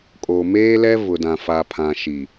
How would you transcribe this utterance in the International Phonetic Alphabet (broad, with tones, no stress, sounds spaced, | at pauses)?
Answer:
kʼ oː˨ m eː˦ l ɛ˦ v ʊ˨ d ã˨ f a˨ pʰ ã˨ ʃ i˨